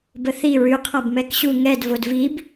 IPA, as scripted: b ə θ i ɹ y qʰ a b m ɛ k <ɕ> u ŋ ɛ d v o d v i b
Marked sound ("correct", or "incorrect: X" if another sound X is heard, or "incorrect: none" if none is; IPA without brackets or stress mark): correct